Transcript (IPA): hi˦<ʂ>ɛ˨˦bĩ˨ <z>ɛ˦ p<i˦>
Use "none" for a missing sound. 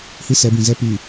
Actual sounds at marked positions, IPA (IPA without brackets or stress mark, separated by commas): s, z, i˨